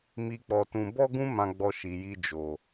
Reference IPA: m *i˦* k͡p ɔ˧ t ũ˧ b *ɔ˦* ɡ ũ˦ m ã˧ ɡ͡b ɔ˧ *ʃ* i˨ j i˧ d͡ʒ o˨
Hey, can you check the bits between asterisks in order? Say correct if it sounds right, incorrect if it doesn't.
incorrect: i˧, correct, correct

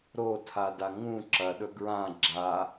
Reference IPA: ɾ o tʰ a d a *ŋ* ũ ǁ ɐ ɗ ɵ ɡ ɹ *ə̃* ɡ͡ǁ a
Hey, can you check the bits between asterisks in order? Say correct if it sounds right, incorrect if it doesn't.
correct, incorrect: ã

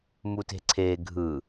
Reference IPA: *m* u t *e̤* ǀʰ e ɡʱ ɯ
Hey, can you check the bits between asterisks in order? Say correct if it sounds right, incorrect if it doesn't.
correct, correct

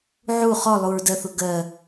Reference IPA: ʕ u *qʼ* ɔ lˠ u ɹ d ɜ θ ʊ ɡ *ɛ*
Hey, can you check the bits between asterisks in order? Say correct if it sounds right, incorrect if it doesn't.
incorrect: χ, incorrect: ɜ

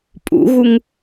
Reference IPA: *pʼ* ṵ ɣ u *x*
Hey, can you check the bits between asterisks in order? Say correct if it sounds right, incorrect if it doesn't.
correct, incorrect: ŋ

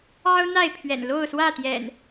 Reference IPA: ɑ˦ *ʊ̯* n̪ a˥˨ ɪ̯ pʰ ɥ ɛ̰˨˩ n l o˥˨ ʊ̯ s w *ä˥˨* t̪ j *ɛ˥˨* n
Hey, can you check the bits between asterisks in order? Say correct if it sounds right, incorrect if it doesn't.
correct, correct, incorrect: ɛ̰˨˩

